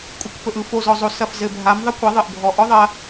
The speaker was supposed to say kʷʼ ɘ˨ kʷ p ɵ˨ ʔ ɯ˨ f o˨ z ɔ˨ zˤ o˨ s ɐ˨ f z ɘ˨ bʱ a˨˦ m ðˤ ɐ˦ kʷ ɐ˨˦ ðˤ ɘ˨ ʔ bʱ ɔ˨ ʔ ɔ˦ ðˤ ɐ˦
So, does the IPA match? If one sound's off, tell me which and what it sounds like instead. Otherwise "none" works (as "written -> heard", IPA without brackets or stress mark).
none